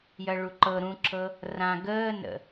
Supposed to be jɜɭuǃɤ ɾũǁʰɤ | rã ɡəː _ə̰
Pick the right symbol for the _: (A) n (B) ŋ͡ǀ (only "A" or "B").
A